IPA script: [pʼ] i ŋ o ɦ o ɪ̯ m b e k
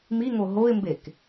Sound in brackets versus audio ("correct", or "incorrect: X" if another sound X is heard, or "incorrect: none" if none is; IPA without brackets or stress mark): incorrect: m